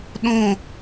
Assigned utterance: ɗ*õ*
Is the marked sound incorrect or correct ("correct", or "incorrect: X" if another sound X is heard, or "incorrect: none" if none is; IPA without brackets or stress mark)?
correct